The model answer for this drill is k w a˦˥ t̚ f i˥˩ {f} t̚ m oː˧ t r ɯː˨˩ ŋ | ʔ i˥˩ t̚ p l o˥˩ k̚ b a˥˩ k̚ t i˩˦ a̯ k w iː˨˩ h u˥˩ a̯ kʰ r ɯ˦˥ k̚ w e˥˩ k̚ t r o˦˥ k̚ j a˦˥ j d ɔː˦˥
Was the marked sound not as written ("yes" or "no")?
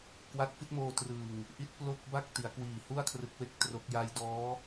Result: yes